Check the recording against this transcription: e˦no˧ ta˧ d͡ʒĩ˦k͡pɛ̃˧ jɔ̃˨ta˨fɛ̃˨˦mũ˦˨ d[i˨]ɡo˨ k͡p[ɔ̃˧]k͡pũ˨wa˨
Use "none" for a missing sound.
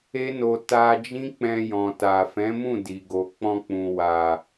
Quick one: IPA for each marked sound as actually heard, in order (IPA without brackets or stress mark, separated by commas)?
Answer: i˨, ɔ̃˧